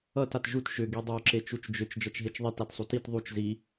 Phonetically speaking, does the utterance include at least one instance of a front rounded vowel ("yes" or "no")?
yes